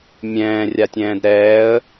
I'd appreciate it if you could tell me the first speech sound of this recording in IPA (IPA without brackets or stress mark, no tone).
mʲ